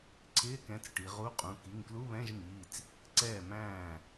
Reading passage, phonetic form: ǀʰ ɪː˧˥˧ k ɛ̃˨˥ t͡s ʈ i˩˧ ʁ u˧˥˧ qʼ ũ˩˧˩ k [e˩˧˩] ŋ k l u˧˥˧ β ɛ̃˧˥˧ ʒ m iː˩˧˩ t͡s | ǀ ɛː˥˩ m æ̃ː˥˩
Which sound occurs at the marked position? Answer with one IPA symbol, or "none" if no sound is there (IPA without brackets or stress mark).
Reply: i˩˧˩